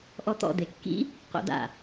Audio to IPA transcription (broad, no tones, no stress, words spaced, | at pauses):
ʔɔt̪ɔ̰ d̪ekːḭ | qo̰da̰